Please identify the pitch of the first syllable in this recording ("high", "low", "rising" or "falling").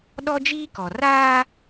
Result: high